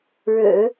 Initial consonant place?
retroflex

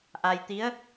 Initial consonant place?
glottal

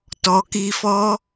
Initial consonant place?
alveolar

